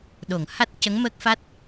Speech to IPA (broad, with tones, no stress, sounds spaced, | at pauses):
ɗ o˨˩˨ ŋ h a˦˥ t̚ c ə˧˥ ŋ m əː˦˥ k̚ f a˦˥ t̚